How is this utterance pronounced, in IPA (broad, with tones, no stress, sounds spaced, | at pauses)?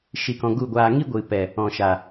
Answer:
ʃ i˧ k ɔ̃˧ ɡ u˦˨ ɡʷ aː˧ ŋ i˦ ɡʷ ɨ˨ p ɛ˨ | ɔ̃˨ ʃ a˨